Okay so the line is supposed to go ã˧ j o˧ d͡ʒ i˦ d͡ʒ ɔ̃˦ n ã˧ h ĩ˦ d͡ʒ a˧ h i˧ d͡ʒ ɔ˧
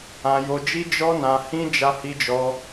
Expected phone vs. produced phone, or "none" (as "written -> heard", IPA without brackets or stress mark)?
ɔ̃˦ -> ɔ˦